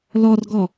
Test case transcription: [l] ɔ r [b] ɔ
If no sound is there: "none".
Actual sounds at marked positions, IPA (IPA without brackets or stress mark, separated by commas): l, ɡ